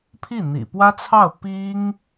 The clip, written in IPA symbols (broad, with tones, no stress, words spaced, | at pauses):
pʰi˥˩n̪ḭ˨˩ pwä˥t͡sʰɑ˥˩ʊ̯ pi˥ŋ